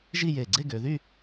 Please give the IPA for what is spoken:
ʒ i˥˧ j e˧˩ ɡ͡ǀ e˥˧ ɡ ø˩˧ ð y˥˧

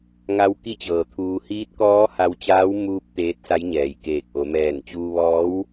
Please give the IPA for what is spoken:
ŋ a˧˥ w k i˥˨ t͡ɕ ɤː˩ t̪ʰ uː˧ h iː˧˥ t̚ k ɔː˧˥ h a˧ w t͡ɕ aː˧˥ w m uː˧ p̚ t̪ eː˧˥ t̚ s a˧˥ j ɲ ɛː˩ j k eː˧˩ k̚ ʔ o˩˧ m ɛː˧˩ n t͡ɕ uː˧ ʋ ɔː˧˥ w

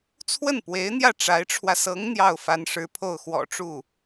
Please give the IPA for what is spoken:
t͡sʰ w ə˥˩ n p w e˧˥ ɪ̯ n̪ j ä˥˩ ʈ͡ʂ a˧˥ ɪ̯ ʈ͡ʂʰ w ä˧ s ɤ˧˥ ŋ n̪ j ɑ˥˩ ʊ̯ f a˧˥ n ʂ ɻ̩˧˥ pʰ o˥˩ ʊ̯ x w ɔ̰˨˩ ʈ͡ʂ u˥˩

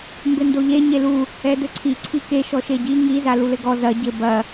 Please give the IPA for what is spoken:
m b ɘ n d o ʎ e ɲ e l u | ɛ d ɘ ǀʰ i ǀʰ i k e ʃ ɔ ʃ e ɟ i ŋ i z a l u l ɘ ɡ ɔ z ɐ ɟ ɘ b ɐ

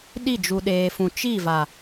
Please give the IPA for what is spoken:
ɗ i˦˨ d͡ʒ u˨ ɗ eː˨ f ũ˨ t͡ʃ i˦˨ v a˨

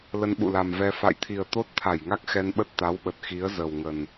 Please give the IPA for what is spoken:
l ə˧ n ɓ ṵ˧˨ l a˨˩ m v ɛ˧ f a̰˧˨ j t̪ʰ i˨˩ ə̯ t̪ o˦˥ t̚ t̪ʰ a˧˩ j ŋ a˦˥ k̚ x ɛ˧ n ɓ ə˦˥ t̚ t̪ a˨˦ w ɓ ə˨˩ t̚ x i˨˦ ə̯ z ə˨˩ w ŋ ə˨˩ n

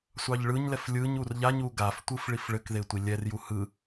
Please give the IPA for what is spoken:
sʷ ɑ ʎ ɭ ɯ ɲ l ɛ f lʲ ɯ ɲ u r ʎ a ɲ u ɡ a f tʷ ɯ f ɭ i f ɭ ɘ k ð e tʷ i lʲ ɛ r j u h ɯ

